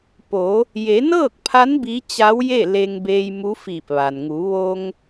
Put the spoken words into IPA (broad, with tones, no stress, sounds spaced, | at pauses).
p o˩˧ | j e˩˧ n ɤː˥˨ k̚ pʰ a˧˥ n b i˧˥ t͡ɕ a˧˥ w j e˥˨ l e˧ ŋ b eː˧ j m u˧˥ f iː˧˩ p̚ ʋ a˩ n ŋ u˩˧ ʋ o˧ ŋ